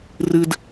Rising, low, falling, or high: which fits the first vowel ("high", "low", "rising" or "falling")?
high